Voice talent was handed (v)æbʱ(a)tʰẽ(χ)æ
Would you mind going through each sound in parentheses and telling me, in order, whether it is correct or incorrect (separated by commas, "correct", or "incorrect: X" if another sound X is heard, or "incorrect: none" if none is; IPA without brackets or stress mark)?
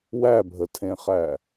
incorrect: w, incorrect: ə, correct